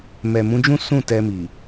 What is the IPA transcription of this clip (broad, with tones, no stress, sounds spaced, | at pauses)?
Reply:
m ɛ˨ m ũ˨˦ d͡ʒ ũ˦ s ũ˦˨ t ɛ˧ m i˨